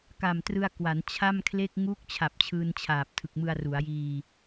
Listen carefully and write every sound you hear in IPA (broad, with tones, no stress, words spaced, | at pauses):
ka˨˩mtrɯ˧a̯ kwa˩˦n t͡ɕʰa˥˩mkʰle˥˩k̚ ŋu˦˥k̚ t͡ɕʰa˨˩p̚t͡ɕʰɯː˧nt͡ɕʰaː˨˩p̚ tʰɯ˨˩k̚mɯ˧a̯ru˩˦a̯jiː˧